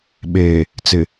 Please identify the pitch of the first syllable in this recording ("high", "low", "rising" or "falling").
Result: low